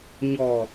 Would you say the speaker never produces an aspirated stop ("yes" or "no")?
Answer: yes